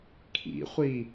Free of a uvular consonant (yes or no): no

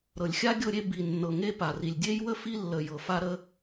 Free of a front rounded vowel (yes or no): yes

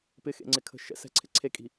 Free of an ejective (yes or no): no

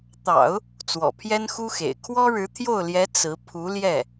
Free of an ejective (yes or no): yes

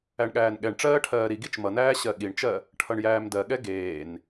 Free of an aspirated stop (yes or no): no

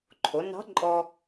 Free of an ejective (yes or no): no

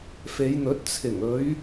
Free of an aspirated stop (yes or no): no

